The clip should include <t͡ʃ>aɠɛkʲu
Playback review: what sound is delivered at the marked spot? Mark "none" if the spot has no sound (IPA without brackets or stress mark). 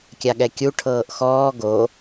kʲ